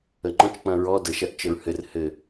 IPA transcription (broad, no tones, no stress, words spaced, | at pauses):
əŋ͡ǃɔ̃t͡ʃ k͡pɐ̃ɹɔ də ʃɐʔt͡ʃəɹhɘr hɘ